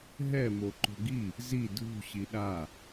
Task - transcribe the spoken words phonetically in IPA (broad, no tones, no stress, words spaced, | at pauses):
ɦɛ moǃo̤ɡi | zi dʱṳ ɕiɗa